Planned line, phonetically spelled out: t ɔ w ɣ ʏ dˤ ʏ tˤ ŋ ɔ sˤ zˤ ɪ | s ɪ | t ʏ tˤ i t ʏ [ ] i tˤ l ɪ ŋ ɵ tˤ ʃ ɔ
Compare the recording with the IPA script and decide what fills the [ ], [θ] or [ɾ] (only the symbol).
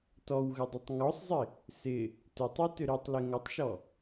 ɾ